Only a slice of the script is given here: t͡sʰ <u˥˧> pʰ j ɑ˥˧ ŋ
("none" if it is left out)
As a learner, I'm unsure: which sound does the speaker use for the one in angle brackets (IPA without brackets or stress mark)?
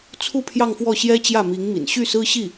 u˥˧